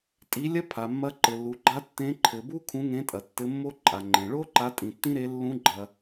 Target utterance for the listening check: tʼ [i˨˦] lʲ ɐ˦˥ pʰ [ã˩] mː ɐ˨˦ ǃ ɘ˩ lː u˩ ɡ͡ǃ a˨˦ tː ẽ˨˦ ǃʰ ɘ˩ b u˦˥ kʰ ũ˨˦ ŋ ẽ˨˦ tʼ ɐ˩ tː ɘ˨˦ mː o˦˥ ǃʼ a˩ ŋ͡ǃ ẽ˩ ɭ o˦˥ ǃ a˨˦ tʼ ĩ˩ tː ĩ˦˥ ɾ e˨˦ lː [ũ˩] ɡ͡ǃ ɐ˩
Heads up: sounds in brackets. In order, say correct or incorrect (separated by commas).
correct, incorrect, incorrect